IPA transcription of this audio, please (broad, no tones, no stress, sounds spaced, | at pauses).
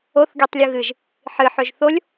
o θ ɡʲ ɔ tˤ lʲ ɯ ɣ ɨ ʒ | ħ ɨ ħ ø ʒ θ o lʲ